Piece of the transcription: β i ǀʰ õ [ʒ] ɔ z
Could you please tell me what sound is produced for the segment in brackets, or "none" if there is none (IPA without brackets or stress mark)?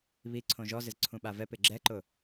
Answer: ʒ